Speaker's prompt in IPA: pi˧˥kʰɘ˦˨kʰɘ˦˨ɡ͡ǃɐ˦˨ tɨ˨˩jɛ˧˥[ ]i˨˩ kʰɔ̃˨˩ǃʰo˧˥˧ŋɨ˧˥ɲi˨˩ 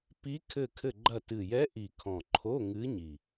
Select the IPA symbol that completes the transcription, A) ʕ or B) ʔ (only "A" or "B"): B